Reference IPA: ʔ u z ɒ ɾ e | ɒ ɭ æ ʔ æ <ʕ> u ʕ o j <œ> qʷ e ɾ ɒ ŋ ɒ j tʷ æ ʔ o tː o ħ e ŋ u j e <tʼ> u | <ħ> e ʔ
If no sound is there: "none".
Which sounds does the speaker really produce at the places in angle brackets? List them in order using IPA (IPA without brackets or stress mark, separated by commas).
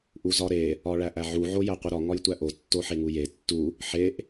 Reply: ʕ, æ, tː, ħ